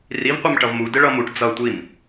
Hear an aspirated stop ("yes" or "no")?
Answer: no